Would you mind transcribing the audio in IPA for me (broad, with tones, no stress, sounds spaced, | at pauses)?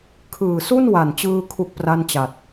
kʰ ɯː˨˩ s u˥˩ n w a˨˩ n t͡ɕ ɯː˧ kʰ u˥˩ k̚ p r a˥˩ n t͡ɕ a˨˩ t̚